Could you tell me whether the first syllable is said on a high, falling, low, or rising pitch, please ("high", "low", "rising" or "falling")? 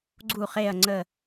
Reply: falling